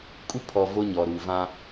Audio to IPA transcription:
kʼ u˦ pʰ ɔ˨ v o˦ ɲ ɔ˨ ɾ u˨ v ã˦

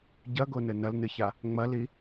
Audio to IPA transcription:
ɟ ɐ ɡ o n ɘ n ɐ l n ɨ ç a | ŋ͡m ɐ l i

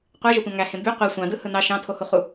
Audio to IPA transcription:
qʷ æ ʒ o tʷ ɑ̃ ŋ æ h ẽ b y qʷ æ sʷ ɑ̃ d ɯ h ɯ n ɑ ʃ ɑ̃ tʰ o h u χ u

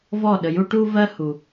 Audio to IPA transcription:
v ɔ˥˩ ɗ ə˩ j u˥ ʈ u˥ v ɜ˥ h u˩

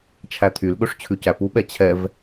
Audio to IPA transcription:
t͡ʃʰ æ t̪ʰ y l ɠ ɵ ʂ t͡ɕʰ ʉ c æ p u ɓ ɛ t͡ɕʰ ɛ v

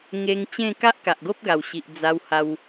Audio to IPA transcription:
ŋ e˧ ŋ t͡ɕ ẽ˥˧ k a˦ ʔ k a˨ ʔ ɡ o˦ p̚ ɡ a˨˩ w ɕ i˨ ʔ d͡z a˧ w h a˧ w

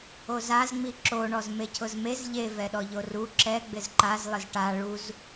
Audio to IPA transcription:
o z a z ŋ͡m i ǁ o ɳ ɔ z m e cʰ ʊ z m e z ʎ e v ɛ ɗ ɔ ʎ o r u ǁ ɛ ɡ͡b ɪ z ǃ a z lˠ ɪ z ʈ a ɭ u z

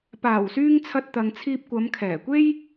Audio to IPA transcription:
p aː˨˩ w s yː˧ ŋ t͡sʰ ɐ˧ t̚ t̪ ɐ˨ ŋ t͡sʰ iː˧ p̚ kʷ ɐ˨˧ m kʰ ɛː˨˩ kʷ e˥ j

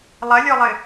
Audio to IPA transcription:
lˠ ɐ lʲ ɔ lˠ ɘ

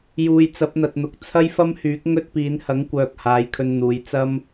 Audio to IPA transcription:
j uː˨ j t͡s ɐ˨˥ p̚ n̪ ɐ˨ t̚ n̪ ʊ˨ k̚ t͡sʰ ɐ˥ j f ɐ˥ m h yː˨˥ k̚ ŋ ɵ˥ t̚ p iː˨˧ n h ɐ˨˥ ŋ kʷ œː˨ k̚ h aː˨˧ j kʰ ɵ˧ n n̪ uː˨˧ j t͡s ɐ˥ m

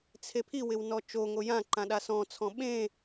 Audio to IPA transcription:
t͡sʰ e pʰ i w ɪ w n ɔ t͡ʃ o ŋ o j ã ǃ ã ɗ a s ɔ̃ t͡sʰ ɔ̃ ɓ ẽ

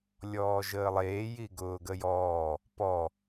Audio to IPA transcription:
lʲ ɔː ʒ əː lˠ eː j i ɡ ʊː ɡ ə j ɔː | p ɔ

